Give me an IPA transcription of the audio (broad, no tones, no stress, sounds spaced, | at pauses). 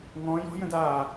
ŋ ɔ̃ j ɔ̤ j ə̃ d a